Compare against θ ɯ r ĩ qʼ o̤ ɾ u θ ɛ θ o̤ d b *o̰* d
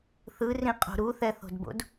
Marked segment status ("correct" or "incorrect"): correct